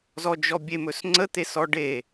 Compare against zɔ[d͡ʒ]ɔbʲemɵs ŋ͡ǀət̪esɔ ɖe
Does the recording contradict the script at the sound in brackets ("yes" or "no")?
no